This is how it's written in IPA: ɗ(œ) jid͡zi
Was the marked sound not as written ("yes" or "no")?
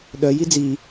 no